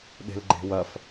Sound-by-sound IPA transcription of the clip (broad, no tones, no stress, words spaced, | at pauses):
ɗe̤lɡ͡ǃe̤wɐf